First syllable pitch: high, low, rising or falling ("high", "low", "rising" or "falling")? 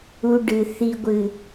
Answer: low